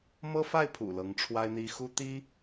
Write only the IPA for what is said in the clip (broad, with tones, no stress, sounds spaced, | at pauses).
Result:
m ɤ˥ f a˥˩ ɪ̯ pʰ ṵ˨˩ l ɤ˧˥ ŋ ʈ͡ʂʰ w a˥ ɪ̯ n̪ i˥ x u˥ t̪ i˥